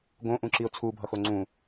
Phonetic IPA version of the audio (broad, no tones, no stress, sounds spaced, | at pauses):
ɡ õ ʔ ũ ǁ i ʊ̯ t͡sʰ u bʱ ʌ x o ŋ͡ǀ ũ